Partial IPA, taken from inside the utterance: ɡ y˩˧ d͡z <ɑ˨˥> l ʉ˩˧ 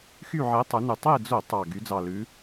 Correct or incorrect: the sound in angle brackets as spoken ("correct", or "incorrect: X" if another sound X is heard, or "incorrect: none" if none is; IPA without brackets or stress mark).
incorrect: ɑ˨˩